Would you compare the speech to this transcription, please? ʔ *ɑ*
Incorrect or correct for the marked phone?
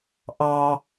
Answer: correct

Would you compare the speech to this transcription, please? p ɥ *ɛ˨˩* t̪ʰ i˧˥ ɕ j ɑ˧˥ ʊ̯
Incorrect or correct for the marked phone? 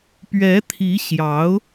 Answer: incorrect: ɛ˧˥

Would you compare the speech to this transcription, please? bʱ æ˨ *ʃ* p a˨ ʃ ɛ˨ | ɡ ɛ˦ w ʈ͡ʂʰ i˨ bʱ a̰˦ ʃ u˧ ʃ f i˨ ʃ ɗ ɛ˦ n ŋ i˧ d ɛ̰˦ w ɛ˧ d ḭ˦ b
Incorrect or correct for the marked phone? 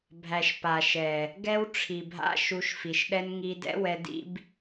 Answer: correct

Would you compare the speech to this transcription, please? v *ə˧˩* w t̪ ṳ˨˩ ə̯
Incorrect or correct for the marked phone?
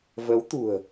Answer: incorrect: ə˨˦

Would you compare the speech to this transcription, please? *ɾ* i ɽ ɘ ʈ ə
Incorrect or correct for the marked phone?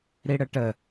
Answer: correct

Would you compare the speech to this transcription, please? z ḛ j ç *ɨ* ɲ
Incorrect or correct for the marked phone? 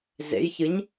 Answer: correct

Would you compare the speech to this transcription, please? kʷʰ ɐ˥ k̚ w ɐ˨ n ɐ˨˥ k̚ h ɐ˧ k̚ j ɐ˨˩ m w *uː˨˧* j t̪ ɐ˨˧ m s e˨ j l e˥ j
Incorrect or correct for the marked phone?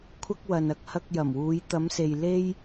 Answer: correct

